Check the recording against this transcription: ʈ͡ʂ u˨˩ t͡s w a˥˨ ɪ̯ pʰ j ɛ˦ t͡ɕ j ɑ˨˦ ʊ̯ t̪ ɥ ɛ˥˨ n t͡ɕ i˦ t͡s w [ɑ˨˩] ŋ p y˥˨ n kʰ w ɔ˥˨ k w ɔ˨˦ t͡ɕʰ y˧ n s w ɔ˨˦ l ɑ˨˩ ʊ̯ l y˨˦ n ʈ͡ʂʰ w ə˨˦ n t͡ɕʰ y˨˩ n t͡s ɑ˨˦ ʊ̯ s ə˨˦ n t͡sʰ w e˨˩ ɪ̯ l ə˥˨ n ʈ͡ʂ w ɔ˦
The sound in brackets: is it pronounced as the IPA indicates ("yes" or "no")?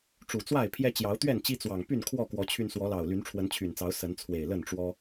yes